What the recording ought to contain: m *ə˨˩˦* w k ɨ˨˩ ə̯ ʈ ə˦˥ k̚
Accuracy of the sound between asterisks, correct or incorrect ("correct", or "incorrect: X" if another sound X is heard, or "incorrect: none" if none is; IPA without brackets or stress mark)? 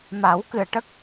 incorrect: a˨˩˦